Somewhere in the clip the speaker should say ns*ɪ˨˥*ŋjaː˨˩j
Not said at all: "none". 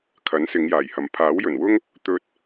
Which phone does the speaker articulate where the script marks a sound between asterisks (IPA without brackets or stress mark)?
ɪ˨˧